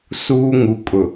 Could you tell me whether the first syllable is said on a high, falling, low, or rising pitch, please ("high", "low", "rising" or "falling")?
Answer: high